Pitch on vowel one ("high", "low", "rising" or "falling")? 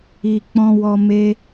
low